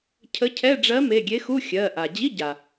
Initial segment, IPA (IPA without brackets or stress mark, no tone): cʰ